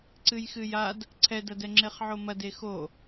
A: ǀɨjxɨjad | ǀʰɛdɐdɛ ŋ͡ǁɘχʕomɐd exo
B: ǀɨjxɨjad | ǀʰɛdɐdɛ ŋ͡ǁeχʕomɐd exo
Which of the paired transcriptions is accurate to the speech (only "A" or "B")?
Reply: B